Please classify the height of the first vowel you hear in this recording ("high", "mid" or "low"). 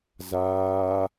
low